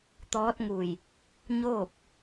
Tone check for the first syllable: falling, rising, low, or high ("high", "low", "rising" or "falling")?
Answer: rising